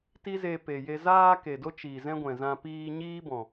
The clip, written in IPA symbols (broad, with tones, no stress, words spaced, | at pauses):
ti˦ze˧pe˨je˧ zaː˧ ke˨do˦ t͡ʃi˨zɛ̃˦ɡʷɛ̃˨zã˧ piː˧ɲiː˦bɔ̃˨